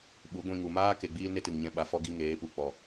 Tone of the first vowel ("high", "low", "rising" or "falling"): rising